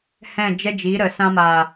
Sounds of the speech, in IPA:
h ɛ̃˦˨ d͡ʒ ɛ˦ d͡ʒ i˨˦ ɾ ə˨ s ã˧ m aː˨

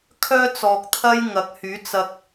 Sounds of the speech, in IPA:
kʰ œː˥ t͡s ɔː˨ k̚ t̪ʰ ɐ˥ j ŋ ɐ˨˥ k̚ h yː˨˥ t͡s ɐ˧ k̚

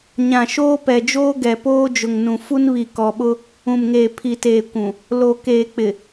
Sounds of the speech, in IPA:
ɲ ã˨ ʃ oː˦ p ɛ˨ d͡ʒ oː˦ ɡ ɛ˨ p oː˦ d͡ʒ ʊ˨ ŋ n ũ˨ f u˦ n β i˨ k ɔ˨ ɓ ʊ˦ | ũ˨ m ŋ eː˨ pʰ i˨ t eː˨ kʷ ũ˨ | l o˨ k eː˨ k͡p ɪ˨

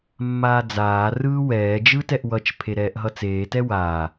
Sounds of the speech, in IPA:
mː aː d͡z aː r ɯː w ɛː d͡ʒ ɯ t ɛ ʔ w ʌ t͡ʃ pʰ e ɾ ɛː ʔ ɦ ʌ t͡s eː t ɛ w aː

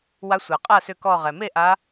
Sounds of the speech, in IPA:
w a˨˦ sʷ æ˩ qʼ a˥˩ s ʏ˧˩ k ɔ˧˩ ʁ ɛ˩ m e˥˩ ʔ a˨˦

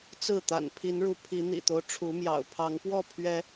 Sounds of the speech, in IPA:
t͡s ɹ̩˥˨ t̪ a̰˨˩ n pʰ i˨˦ n ɻ u˨˦ pʰ i˨˦ n̪ ḭ˨˩ t̪ o˦ ʊ̯ ʈ͡ʂʰ u˨˦ m j ɑ̰˨˩ ʊ̯ pʰ ɑ˨˦ ŋ p w ɔ˥˨ pʰ ɥ ɛ˨˦

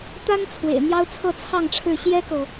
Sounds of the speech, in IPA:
t̪ a˥ n t͡sʰ w ḛ˨˩ ɪ̯ n̪ j ɑ˥ ʊ̯ t͡sʰ ɤ˥˧ t͡sʰ ɑ˥˧ ŋ ʈ͡ʂʰ ɻ̩˥˩ ɕ j ɛ˥ k ɤ˨

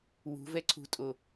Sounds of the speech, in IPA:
w ṳ v ɛ ǀʰ ṳ tʼ o

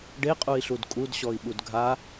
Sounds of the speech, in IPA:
ɖ e qʼ u i̯ ɬ u d kʼ u d ɕ ɔ i̯ ɓ u d ɡʱ a

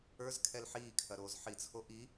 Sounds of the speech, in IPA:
ə˞ z kʰ ɛ l ħ iː kʰ ɐ ɾ oː z ħ i t͡sʰ o ʔ i

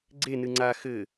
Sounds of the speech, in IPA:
ɡ͡ǀ e n ɨ ŋ͡ǀ a x ɘ

